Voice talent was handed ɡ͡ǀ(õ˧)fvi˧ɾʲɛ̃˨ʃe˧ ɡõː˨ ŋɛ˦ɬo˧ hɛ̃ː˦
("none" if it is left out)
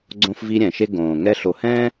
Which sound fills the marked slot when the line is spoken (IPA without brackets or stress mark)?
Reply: õ˧